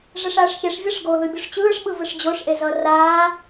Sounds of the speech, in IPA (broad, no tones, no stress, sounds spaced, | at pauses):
ʐ ɛ ʂ aː ʂ ç e ʂ vʲ ʌ ʂ ɡ o ð ɯ bʲ u ʂ t͡ɕ ɯː ʂ ɓ ɯ v ɯ ʂ d͡ʑ o ʂ ʔ e z ʌ r aː